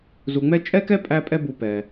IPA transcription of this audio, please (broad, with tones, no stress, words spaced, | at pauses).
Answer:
zu˨ŋ͡mɛ˥ t͡ʃʼɛ˥kɛ˥ pʼæ˦pʼɛ˦ bu˨pɛ˩